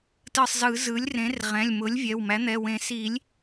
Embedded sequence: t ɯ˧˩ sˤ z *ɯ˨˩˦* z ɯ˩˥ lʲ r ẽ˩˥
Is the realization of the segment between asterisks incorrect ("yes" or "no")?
no